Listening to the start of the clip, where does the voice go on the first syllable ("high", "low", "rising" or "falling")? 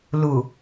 low